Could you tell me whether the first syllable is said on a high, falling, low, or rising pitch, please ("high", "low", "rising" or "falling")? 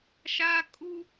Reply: high